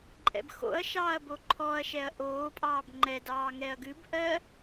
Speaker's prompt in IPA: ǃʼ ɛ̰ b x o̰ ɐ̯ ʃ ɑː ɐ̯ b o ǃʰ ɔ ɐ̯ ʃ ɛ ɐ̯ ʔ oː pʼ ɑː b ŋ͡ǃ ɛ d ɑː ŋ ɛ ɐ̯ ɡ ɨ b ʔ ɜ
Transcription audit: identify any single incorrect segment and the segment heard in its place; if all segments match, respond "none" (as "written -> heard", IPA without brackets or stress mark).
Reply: none